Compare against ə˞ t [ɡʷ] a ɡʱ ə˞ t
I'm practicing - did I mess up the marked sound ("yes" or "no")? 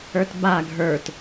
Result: yes